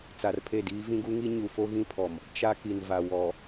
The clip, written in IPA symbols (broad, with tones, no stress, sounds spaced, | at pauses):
t͡s a˨ r pʰ e˦˨ d iː˦ v ĩ˦ ɡ u˦ ŋ i˦ ɲ u˨ f o˦ ɣ ĩ˦ pʰ ɔ˨ m | t͡ʃ a˦ k i˨ n v a˨ w ɔ˨